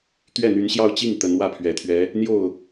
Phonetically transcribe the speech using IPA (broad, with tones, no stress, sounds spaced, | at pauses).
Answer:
t̪ ɥ ɛ˥˩ n̪ y˧˥ n ɕ j ɑ˥˧ ʊ̯ t͡ɕ i˥˩ ŋ t̪ ə˧˥ n w ä˥˩ pʰ ɥ ɛ˨˩ t̪ʰ ɥ ɛ˧˥ | n̪ j o˥˩ ʊ̯